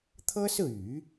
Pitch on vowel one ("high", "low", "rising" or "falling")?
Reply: high